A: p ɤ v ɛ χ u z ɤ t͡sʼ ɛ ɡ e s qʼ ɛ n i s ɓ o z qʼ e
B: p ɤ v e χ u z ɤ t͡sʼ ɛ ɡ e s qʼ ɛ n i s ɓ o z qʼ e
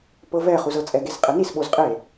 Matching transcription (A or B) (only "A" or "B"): A